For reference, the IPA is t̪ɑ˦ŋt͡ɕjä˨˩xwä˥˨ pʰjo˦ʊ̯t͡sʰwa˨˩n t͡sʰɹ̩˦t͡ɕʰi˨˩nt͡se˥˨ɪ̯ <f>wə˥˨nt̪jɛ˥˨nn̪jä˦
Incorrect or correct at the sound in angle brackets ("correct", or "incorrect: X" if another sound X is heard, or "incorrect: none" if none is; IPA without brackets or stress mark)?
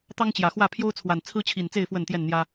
correct